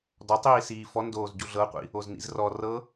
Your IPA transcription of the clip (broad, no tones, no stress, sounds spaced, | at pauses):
d ɔ tˤ iː s iː f ɔ n d oː z ɟ u ɮ ɤ qʷ ḭ | o z n ḭ z r ɔ r ɤ